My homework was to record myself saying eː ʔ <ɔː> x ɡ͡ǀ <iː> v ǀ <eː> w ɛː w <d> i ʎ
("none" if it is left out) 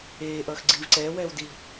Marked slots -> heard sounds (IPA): ʌː, iː, ɛː, d

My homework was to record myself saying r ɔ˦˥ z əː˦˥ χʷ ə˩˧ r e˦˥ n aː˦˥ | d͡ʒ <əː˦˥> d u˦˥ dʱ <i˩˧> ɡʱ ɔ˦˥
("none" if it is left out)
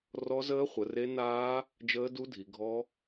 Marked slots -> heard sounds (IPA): əː˦˥, i˩˧

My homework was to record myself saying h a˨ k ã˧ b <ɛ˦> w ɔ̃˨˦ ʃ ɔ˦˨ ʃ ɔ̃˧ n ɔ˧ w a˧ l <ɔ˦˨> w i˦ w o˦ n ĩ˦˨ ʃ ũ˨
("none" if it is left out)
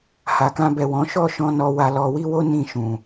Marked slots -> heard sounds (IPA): ɛ˨, ɔ˧

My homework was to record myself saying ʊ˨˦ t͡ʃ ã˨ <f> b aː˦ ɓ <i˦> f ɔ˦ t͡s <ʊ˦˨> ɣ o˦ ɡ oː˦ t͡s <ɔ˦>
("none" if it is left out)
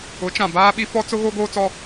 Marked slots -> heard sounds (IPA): none, i˦, ʊ˦, ɔ˦

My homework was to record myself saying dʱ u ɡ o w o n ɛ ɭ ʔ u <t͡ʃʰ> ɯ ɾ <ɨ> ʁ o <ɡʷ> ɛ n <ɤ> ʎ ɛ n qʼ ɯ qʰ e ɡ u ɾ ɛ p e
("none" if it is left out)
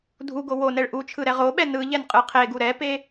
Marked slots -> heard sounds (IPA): t͡ʃʰ, ɛ, ɓ, ɯ

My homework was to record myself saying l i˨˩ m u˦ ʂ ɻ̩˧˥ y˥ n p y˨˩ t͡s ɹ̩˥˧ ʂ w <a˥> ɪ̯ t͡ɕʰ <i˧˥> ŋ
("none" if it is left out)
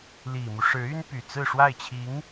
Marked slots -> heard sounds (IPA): a˥˩, i˧˥

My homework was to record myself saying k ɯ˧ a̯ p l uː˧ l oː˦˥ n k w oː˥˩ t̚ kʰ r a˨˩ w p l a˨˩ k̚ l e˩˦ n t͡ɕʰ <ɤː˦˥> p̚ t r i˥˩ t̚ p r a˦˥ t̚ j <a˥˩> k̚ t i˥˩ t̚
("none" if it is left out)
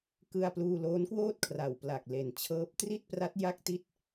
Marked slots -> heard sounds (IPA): ɤː˦˥, a˥˩

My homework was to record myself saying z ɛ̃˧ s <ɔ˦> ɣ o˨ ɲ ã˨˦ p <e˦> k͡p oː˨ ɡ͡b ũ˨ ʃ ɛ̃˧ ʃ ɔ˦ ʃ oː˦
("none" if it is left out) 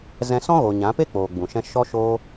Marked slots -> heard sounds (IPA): ɔ̃˦, e˦

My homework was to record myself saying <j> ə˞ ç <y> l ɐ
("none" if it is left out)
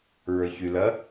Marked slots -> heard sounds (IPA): ɹ, y

